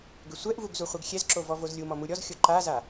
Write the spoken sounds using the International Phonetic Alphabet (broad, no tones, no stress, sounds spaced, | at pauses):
ɡ ʏ sʷ ɛ ʔ v u ɡ z u χʷ ɛ ɡ xʲ ɛ z ǁ o v ɔ v o z lʲ u m ɔ m u ɾʲ ɔ z xʲ o ǃ a z a